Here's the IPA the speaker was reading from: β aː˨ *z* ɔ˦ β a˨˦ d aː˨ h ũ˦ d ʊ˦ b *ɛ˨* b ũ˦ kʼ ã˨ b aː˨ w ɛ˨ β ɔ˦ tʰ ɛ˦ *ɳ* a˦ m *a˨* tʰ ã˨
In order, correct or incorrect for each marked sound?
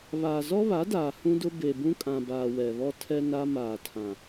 correct, incorrect, incorrect, incorrect

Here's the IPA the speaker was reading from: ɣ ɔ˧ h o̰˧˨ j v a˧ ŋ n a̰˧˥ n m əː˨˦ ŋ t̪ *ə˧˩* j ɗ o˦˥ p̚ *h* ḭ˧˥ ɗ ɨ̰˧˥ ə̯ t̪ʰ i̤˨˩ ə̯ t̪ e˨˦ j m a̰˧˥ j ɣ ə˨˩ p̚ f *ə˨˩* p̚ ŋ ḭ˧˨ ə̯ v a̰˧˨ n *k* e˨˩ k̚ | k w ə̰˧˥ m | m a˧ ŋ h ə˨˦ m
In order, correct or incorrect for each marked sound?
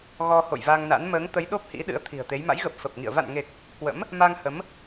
incorrect, correct, correct, incorrect

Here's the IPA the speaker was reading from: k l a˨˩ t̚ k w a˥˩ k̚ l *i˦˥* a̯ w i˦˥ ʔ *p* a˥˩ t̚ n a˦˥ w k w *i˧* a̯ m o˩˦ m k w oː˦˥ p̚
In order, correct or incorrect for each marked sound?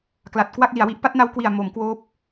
incorrect, correct, incorrect

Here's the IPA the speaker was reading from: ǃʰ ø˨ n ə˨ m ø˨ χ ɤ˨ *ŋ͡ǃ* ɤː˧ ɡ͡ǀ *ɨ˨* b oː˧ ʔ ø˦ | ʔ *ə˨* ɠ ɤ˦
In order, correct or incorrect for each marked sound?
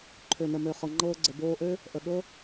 correct, incorrect, correct

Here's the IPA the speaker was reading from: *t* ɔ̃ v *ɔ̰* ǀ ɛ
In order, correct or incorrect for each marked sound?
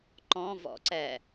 incorrect, correct

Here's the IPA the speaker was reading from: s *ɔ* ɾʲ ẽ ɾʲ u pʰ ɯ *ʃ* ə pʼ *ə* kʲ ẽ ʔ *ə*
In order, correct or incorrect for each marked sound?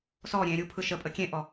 correct, correct, correct, incorrect

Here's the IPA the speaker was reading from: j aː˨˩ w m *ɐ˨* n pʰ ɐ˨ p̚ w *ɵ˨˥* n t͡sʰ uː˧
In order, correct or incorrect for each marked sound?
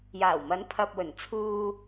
incorrect, incorrect

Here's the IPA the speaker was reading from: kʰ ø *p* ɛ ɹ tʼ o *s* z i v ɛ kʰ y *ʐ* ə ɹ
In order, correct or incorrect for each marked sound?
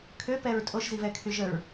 correct, incorrect, incorrect

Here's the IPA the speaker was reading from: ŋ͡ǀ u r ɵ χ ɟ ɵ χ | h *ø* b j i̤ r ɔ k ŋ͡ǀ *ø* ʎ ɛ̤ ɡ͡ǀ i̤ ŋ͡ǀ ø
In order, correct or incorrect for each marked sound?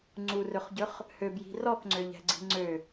correct, correct

